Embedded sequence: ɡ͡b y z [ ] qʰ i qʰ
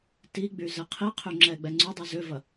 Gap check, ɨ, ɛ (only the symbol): ɛ